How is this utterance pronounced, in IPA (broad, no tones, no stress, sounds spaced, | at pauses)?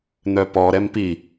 n̪ œ p ɔ ɾ ɛ m p i